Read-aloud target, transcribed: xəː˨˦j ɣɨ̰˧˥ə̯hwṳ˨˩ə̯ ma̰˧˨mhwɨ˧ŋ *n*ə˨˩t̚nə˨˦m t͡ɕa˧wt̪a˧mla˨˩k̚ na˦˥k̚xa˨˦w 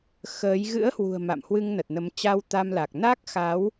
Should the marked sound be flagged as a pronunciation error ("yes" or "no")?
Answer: no